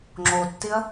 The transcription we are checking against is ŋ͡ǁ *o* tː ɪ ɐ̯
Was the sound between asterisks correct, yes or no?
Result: yes